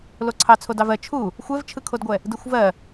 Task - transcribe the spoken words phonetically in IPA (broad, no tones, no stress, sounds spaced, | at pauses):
l o ǀʰ ɑ t͡sʰ o d ɑ v ɜ t͡ʃʰ u | xʷ ɛ v t͡ʃʰ ɯ kʰ o d ɡʷ ɛ | d ɯ xʷ v ɜ